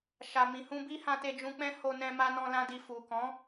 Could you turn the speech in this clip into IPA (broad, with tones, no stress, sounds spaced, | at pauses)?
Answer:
ʃ a˨ m ĩ˨ h ũ˧ b i˦ h ã˧ t e˧ d͡ʒ ũ˧ k͡p ɛ̃˦ h o˧ n ɛ̃˧ m a˧ n ɔ̃˧ l ã˦ d i˧ f u˨ k ɔ̃˨˦